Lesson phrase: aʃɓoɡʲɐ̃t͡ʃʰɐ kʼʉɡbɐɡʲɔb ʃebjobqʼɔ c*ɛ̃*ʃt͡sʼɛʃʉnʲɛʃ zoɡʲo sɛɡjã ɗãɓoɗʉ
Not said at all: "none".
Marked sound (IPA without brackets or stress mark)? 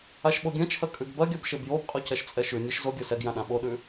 ɛ